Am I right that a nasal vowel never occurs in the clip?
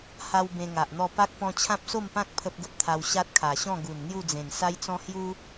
no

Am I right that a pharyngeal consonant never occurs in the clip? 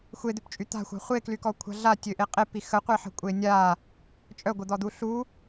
no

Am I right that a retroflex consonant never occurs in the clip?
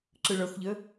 no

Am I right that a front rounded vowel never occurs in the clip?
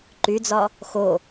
no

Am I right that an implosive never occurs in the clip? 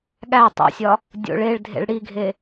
no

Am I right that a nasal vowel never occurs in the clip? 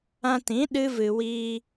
no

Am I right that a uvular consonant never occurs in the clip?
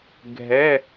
yes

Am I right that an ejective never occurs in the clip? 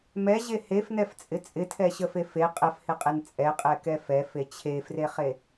no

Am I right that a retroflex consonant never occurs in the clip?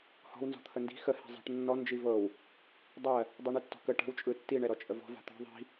no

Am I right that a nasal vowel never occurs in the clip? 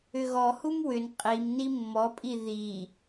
yes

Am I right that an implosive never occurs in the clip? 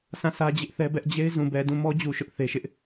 yes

